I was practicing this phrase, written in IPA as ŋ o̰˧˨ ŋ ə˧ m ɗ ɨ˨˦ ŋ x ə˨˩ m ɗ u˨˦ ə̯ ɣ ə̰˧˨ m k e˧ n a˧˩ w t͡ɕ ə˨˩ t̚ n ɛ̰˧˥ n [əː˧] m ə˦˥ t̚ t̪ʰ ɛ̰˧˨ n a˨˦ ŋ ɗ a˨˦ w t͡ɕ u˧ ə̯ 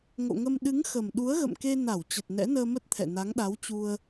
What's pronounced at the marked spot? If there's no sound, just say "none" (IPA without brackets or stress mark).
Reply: əː˧